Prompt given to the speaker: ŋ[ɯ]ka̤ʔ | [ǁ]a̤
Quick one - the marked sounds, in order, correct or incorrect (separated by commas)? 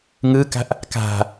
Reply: correct, incorrect